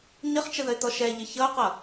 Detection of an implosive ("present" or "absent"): absent